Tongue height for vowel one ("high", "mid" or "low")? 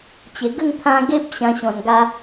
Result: mid